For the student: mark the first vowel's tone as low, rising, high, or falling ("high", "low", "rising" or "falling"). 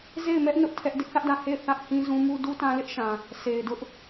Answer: falling